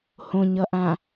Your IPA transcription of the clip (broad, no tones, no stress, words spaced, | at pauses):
hõɲʌʔã